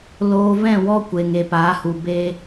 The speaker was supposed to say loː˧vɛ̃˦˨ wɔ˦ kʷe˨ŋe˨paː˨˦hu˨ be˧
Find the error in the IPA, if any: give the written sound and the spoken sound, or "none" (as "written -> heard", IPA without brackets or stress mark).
none